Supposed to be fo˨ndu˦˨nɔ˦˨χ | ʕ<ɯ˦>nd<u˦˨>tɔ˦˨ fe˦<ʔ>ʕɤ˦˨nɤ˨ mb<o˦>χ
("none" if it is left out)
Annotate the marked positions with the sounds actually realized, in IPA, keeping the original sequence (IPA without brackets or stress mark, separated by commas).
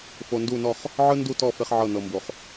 ɯ˦, u˦˨, χ, o˨